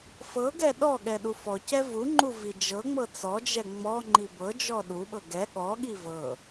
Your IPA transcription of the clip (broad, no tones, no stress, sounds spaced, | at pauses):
f ɤ ɡ ɛ ɗ ɔ ɠ ɛ ɗ u f ɔ c ɛ v u ŋ͡ǃ u v i d͡ʒ ɤ ŋ͡m ɤ t͡s ɔ d͡ʒ ɛ ŋ͡m ɔ ŋ͡ǃ i b ɤ d͡ʒ ɔ ɗ u ɓ ɤ ɡ ɛ ɠ ɔ ɠ i v ɤ